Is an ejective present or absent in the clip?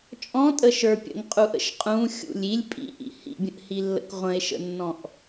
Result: present